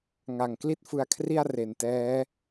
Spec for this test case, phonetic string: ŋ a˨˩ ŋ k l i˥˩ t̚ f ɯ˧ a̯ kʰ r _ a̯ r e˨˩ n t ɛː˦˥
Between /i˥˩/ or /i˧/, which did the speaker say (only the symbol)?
i˥˩